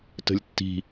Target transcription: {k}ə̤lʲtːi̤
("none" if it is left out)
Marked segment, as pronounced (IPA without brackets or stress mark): t